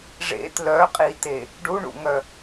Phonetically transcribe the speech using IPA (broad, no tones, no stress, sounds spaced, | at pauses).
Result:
ʐ ḛ t l œ qʼ i t e | ɖ u ɳ ṵ ŋ œ